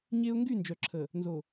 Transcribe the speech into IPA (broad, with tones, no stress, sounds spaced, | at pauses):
ɲ e˦ ʊ̯ ŋ ɡ y˦˨ n d͡ʒ œ˨ ǁʰ ə˨ | n z o˨